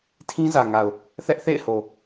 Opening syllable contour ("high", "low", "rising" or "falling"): high